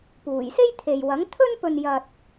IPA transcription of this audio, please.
p uː˨˩ j s e˥ j t̪ʰ e˨ j w ɐ˨˥ ŋ t̪ʰ ɵ˥ n p ɵ˧ n j ɐ˧ t̚

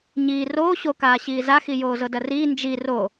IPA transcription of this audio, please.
ɲ iː r oː ɕ o k aː ɕ iː z a x i j oː z ɤ d ɐ r iː n d͡ʒ i r o

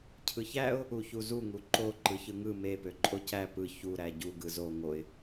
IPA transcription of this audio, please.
cʰ ɯ ç æ ʊ̯ | u ç u z u ŋ u ǃ o ǃ ɯ ç ɯ ŋ ɯ m e p ø ǃʼ o c æ p ɯ ç u ɾ æ ɟ u ɡ ɯ z o ŋ o ɪ̯

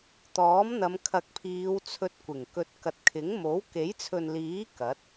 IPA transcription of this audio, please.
t̪ ɔː˨˥ m n̪ ɐ˨˧ m kʰ ɐ˨ k̚ pʰ iː˨˧ w t͡sʰ ɵ˧ t̚ kʷ ɪ˨˩ ŋ k ɵ˧ t̚ k ɐ˧ t̚ kʰ ɪ˨˥ ŋ m o˨˥ w k e˨˥ j t͡sʰ ɵ˨ n l iː˨˥ k ɐ˨˥ t̚

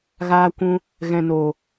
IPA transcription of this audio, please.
ɣ aː˧ kʷ ũ˧ | ɣ ɛ̃˨ n o˨

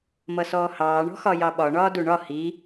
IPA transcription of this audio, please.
m ʌ s ɔː h ɑː ɳ ɔ̤ x ɒ j ɑ ɓ ɒ ɳ ɒː d u ɳ ɒ h i

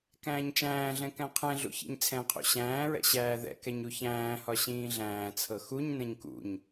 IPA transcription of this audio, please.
k æ̃ː ɲ t͡ʃ æ̃ː ɮ ɛ̃ k æ̃ qʰ ɛ̃ ɮ ṵ ç ḭ ɲ t͡sʰ ɛ̃ qʰ ṵ ɕ æ̃ː ɹ ɛ̰ ɕ æː ð ɛ̰ k ɛ ɲ u ç æ̃ː h ɒ ɕ ĩː ɮ æ̃ː t͡sʰ ɤ x u ɲ n ɛ̃ ɲ k ṵ ɲ

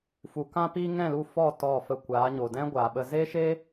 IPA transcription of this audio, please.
f u˨ k ã˧ p iː˧ ŋ ɛ̃˦˨ l u˦˨ f ɔ˦˨ t ɔ˦˨ f ə˦˨ kʷ aː˨˦ ɲ o˨ d ɛ̃˦ ɡʷ aː˨ ɓ ə˧ z eː˦ ʃ eː˦

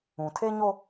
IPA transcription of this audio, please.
ũ˨ tʰ e˦ ɲ o˦

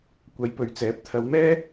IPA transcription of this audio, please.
kʷ ɐ˨˧ j p ɵ˨˧ ɥ t͡s ɛː˨˥ p̚ t̪ʰ ɐ˨˧ w m ɛː˥

